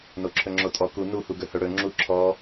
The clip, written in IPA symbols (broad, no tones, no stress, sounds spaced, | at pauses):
n o ǁʰ ɵ ŋ͡ǁ o tʼ ɔ k u n u h u ɡ ɵ h ɵ ɽ ɵ ŋ͡ǁ u ǁʰ ɔ